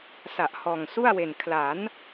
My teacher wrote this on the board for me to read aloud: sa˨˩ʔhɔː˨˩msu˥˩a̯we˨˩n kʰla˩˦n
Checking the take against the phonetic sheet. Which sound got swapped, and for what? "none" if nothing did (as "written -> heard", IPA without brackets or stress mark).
m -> ŋ